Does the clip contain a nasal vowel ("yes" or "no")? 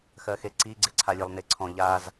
yes